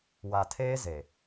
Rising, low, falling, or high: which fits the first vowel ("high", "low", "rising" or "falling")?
low